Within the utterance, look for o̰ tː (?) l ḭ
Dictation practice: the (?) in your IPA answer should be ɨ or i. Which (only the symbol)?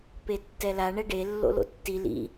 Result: i